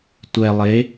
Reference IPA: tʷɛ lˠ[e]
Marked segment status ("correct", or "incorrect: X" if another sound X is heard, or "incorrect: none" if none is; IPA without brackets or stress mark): correct